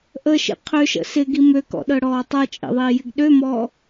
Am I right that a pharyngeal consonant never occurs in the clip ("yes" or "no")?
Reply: yes